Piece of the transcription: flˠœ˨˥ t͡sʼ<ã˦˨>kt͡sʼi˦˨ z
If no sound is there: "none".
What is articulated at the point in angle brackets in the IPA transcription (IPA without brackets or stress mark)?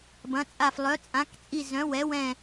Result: ã˨˥